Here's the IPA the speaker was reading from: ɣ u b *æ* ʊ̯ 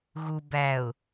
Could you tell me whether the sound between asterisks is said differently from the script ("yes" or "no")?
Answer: no